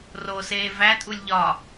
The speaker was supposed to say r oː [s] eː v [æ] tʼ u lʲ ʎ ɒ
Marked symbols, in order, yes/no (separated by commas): yes, yes